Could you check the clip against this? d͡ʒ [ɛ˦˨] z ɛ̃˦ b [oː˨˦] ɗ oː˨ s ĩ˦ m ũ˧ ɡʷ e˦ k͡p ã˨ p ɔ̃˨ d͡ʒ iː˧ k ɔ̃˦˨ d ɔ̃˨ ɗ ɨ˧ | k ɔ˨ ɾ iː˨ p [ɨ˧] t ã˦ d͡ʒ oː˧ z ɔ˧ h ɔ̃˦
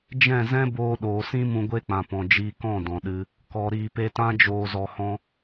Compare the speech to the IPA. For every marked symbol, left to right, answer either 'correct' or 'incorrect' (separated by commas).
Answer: incorrect, incorrect, incorrect